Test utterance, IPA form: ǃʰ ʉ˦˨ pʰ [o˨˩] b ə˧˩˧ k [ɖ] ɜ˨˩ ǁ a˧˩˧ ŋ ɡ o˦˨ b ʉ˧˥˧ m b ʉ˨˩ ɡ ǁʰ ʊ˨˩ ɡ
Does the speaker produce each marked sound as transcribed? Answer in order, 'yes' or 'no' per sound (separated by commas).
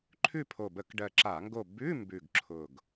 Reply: yes, yes